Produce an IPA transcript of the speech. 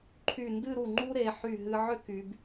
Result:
ǃʰy˧˩ndɨ˥˧ɾu˧˩ ŋ͡ǃu˥ɾe˩˧ ħy˧˩ ɦɨ˧ʕʏ˥ky˩˧b

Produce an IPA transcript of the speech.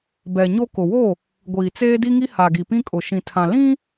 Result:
bɛ˨ɲo˦ kʊ˨wo˦˨ | ɡʷiː˨t͡seː˦ di˦ŋi˦ha˨ɡi˨ pĩ˦kʼʊ˨ ʃĩ˨tʰã˨ lĩ˦

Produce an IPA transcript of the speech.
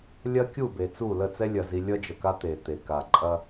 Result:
lʲɐ˦kʲu˦˨ be˨t͡su˦˨ lə˦˨t͡sɛ˦lʲɐ˨ zi˦ lʲʌ˦d͡ʒə˨ka˦ t̪e˨ t̪e˨ka˨ǃʼɐ˦

